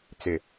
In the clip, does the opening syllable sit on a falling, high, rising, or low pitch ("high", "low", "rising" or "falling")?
low